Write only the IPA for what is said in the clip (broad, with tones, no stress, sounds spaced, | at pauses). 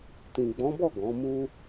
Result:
t ĩ˨ ɡ͡b ɔ̃˨˦ b ɔ˦˨ ɡ ɔ̃˨˦ m u˦